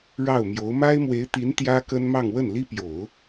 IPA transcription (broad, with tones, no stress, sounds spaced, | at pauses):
ɻ ɑ˥˩ ʊ̯ m j o˧˥ ʊ̯ m a˥ ɪ̯ m w e˧˥ ɪ̯ t̪ i˧˥ n t̪ j ä˥ k ə˥ n m ɑ˥˧ ŋ w ə˥˩ n l i˥ p j o˨˩˦ ʊ̯